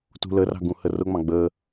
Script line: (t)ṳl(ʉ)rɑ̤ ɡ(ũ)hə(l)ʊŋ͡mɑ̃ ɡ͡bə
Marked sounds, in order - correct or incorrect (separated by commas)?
correct, incorrect, correct, incorrect